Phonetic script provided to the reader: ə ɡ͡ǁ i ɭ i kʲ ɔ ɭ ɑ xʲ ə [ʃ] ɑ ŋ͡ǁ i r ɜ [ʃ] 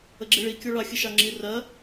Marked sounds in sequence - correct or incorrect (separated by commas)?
correct, incorrect